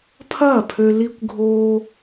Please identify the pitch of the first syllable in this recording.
falling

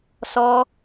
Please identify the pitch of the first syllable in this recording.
high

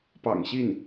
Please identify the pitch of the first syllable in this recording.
low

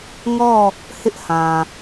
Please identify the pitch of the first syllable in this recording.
falling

